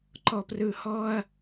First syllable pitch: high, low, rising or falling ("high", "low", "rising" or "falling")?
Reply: low